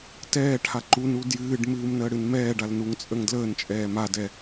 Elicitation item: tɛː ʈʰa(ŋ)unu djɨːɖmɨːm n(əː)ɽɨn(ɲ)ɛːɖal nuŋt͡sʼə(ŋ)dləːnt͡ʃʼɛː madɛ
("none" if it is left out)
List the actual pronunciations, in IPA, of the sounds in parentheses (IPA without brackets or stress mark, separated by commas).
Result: ǃ, əː, m, ŋ